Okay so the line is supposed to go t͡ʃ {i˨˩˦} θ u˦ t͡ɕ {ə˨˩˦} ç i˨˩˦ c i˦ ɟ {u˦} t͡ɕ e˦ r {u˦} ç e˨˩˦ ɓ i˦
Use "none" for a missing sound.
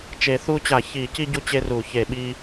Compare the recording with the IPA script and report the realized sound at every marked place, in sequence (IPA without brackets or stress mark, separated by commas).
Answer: e˨˩˦, a˨˩˦, u˦, u˨˩˦